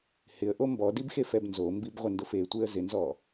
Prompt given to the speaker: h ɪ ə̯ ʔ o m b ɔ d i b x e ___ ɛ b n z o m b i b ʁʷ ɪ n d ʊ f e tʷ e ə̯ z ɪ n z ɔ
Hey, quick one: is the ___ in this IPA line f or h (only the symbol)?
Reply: f